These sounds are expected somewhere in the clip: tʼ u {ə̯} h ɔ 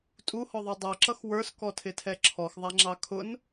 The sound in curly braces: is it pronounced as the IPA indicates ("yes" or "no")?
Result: no